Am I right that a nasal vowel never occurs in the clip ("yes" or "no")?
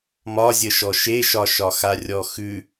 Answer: yes